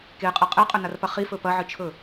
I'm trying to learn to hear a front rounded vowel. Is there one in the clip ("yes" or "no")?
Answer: no